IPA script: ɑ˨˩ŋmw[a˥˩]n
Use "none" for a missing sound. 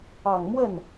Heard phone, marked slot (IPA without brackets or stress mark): ə˥˩